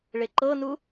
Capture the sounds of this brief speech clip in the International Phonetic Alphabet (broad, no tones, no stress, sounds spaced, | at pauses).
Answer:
ɭ e ǃ ɤ n u